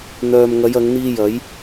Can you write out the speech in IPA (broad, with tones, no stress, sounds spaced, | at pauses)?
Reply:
n̪ œː˨ m ŋ ɐ˨˧ j ɐ˨˧ ŋ n̪ iː˧ j ɐ˨˥ j